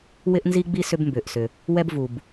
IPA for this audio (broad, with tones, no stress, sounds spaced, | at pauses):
w ɪ˥ ʔ n z i˥ ɡ͡b i˥ s ʏ˥ b m b ʏː˩ ʔ s ʏ˩ | w ɛ˥ b v u˩ b